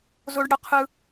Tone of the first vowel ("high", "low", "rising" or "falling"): high